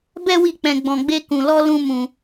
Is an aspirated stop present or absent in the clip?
absent